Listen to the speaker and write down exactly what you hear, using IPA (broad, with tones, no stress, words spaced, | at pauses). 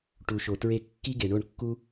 ʈu˨ʃo˨tɹe˧kːi˦ ɡe˨ɳo˦˨ɳkːu˦